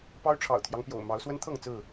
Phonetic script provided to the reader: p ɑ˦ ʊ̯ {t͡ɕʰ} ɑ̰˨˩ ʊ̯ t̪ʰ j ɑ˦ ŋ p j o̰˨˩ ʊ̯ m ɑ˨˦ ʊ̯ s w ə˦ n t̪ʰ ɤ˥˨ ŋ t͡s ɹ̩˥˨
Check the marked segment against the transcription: incorrect: ʈ͡ʂʰ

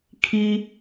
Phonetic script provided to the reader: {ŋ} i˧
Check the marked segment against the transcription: incorrect: kʰ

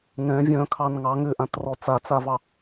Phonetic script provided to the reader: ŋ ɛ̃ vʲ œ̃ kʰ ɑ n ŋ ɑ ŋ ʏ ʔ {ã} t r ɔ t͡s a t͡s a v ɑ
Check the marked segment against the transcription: correct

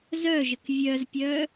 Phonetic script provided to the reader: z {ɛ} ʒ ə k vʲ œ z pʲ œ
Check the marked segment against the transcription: incorrect: œ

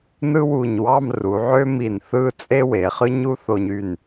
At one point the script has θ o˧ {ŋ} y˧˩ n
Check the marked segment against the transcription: incorrect: ɲ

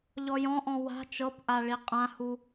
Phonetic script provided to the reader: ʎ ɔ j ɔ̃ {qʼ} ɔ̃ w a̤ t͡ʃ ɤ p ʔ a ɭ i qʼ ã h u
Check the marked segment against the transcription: incorrect: ʔ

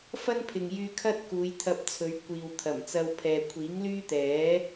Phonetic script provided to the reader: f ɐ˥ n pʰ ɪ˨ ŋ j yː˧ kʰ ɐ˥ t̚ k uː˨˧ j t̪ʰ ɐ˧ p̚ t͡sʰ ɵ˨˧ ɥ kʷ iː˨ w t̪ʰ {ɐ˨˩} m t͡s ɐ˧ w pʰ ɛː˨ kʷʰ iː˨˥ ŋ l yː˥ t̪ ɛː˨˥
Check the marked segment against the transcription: correct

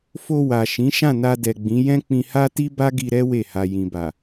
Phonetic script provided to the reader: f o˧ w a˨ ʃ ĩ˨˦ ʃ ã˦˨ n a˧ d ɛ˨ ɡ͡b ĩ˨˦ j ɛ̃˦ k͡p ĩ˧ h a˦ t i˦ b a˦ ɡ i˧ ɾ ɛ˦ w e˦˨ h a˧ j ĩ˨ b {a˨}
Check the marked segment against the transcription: correct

